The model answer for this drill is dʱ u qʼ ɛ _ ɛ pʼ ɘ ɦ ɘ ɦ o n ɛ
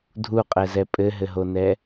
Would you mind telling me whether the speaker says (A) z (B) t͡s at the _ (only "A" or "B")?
A